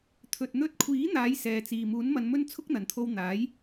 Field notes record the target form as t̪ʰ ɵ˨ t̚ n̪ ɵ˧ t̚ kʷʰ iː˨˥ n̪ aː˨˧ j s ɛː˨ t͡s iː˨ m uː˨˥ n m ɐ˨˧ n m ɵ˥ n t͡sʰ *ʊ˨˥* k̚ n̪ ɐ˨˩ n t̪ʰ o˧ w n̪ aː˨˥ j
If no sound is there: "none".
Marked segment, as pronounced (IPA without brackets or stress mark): ʊ˥